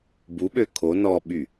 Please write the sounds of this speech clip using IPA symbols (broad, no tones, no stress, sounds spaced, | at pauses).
b u ɓ ø kʰ o n ɔ ɓ y